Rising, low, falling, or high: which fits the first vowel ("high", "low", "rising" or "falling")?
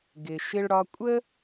low